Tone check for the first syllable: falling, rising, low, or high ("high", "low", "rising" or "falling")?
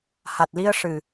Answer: low